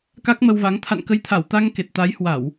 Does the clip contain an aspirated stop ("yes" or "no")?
yes